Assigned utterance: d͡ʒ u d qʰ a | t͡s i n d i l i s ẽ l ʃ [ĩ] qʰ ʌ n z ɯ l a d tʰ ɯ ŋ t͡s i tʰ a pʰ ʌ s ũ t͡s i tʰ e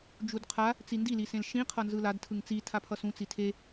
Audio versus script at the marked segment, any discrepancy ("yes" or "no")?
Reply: no